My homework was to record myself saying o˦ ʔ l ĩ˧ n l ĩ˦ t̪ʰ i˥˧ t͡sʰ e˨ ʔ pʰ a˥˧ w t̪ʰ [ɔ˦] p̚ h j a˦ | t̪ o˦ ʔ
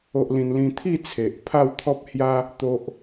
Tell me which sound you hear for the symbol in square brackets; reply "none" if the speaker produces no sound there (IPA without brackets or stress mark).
ɔ˦